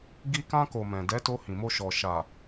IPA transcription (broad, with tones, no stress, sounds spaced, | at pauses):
ɡ i˧ k ã˧ k o˨ m ɛ̃˨ d ɛ˨˦ t o˧ h ĩ˨ m o˧ ʃ ɔ˨ ʃ a˨